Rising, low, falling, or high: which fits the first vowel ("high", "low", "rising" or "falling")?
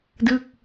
falling